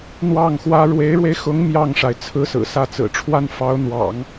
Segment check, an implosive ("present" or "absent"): absent